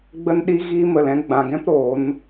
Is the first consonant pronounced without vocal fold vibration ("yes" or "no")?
no